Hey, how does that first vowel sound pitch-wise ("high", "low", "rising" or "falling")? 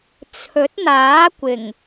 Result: rising